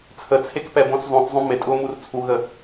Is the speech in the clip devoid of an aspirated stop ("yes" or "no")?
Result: no